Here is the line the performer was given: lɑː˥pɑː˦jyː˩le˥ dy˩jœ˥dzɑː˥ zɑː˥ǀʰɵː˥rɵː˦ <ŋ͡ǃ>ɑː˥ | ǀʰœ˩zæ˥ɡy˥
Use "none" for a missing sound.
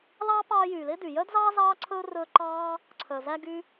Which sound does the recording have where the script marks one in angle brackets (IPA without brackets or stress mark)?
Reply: ǃ